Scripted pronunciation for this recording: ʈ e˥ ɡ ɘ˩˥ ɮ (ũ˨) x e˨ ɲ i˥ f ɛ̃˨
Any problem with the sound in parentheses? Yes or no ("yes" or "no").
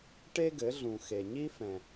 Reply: no